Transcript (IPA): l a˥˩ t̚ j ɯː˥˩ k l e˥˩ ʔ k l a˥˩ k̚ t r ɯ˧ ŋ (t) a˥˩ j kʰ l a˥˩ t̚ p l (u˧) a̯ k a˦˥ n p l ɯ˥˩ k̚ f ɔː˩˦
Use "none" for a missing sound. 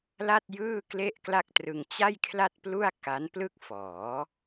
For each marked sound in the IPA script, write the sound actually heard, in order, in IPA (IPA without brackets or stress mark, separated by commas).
t͡ɕ, u˥˩